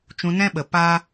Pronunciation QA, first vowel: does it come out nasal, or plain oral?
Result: nasal